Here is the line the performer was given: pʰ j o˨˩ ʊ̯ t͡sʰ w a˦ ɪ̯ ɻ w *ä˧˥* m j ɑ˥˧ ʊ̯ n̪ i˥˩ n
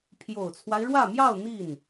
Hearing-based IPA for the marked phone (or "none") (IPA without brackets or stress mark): ä˥˧